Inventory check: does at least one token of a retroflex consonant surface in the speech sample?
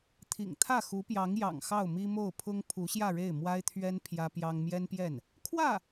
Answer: yes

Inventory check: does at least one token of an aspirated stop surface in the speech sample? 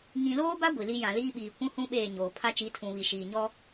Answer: yes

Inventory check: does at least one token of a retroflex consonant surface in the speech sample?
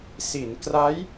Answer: no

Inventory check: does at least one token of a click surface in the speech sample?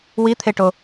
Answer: no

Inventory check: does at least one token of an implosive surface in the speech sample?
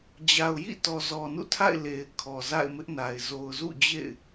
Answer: no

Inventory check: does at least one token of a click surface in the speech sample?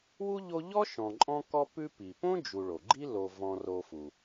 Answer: yes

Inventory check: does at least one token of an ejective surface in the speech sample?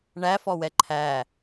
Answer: no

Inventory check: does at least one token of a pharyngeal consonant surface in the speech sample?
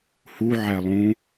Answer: yes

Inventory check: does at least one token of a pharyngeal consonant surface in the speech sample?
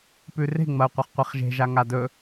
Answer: no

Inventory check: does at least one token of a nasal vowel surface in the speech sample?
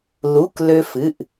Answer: no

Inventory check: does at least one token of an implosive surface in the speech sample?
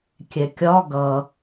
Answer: no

